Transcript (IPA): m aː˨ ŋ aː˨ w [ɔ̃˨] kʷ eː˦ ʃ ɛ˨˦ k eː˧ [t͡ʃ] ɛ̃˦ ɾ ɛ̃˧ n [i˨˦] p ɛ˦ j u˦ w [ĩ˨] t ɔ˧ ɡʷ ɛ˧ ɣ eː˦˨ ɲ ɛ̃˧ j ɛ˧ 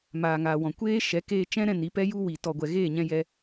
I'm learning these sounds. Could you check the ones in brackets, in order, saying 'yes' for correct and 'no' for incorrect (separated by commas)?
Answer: yes, yes, yes, no